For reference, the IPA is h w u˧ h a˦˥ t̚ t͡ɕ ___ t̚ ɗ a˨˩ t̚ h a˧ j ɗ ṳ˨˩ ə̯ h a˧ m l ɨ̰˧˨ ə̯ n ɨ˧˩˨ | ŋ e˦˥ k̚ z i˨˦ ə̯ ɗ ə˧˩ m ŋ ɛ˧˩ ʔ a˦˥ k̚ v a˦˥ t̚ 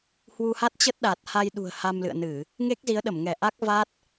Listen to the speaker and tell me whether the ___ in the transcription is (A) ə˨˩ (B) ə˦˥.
B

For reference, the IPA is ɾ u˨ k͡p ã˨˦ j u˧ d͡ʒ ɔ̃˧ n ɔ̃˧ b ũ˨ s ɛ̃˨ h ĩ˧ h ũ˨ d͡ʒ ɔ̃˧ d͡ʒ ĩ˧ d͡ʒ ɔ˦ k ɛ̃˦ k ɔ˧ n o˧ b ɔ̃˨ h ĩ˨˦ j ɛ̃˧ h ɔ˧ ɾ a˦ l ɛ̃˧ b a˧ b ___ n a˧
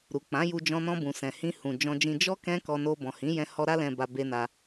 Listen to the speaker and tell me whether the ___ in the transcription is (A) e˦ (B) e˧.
B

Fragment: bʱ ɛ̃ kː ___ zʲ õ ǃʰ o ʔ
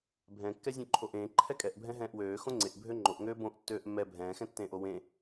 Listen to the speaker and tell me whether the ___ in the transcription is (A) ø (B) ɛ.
B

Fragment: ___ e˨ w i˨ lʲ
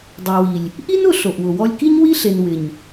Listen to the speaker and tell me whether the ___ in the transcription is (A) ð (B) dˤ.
B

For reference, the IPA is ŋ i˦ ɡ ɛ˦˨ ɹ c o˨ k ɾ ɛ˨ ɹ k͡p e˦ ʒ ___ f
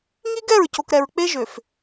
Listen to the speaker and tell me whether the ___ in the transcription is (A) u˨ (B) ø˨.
B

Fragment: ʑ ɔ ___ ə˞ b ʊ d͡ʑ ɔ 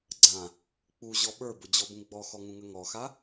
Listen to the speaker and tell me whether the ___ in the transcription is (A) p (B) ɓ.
B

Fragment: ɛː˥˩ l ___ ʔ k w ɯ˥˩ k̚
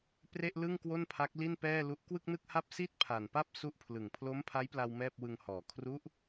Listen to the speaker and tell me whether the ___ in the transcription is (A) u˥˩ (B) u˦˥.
B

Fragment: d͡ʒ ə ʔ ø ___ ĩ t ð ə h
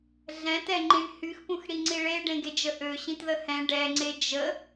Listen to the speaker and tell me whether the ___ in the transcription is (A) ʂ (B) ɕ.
B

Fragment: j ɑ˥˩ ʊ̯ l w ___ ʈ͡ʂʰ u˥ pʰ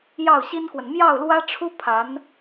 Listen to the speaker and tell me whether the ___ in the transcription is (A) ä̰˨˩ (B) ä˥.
B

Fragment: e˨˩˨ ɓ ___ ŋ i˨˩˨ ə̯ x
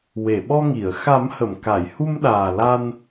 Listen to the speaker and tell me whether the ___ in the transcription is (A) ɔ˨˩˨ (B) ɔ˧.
B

